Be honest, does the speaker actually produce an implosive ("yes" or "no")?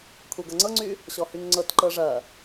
no